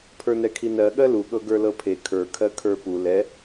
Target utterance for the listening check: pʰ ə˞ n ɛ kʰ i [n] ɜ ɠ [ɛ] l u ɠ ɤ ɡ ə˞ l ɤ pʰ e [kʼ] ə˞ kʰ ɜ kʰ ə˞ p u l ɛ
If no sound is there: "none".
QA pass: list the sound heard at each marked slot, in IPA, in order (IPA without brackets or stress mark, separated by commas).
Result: n, ɜ, kʰ